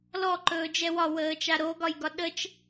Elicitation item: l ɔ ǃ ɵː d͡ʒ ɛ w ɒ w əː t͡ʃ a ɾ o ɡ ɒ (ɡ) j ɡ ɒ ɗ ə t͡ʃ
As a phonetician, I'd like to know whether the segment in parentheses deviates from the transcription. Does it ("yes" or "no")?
yes